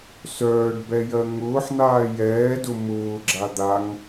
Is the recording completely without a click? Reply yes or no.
no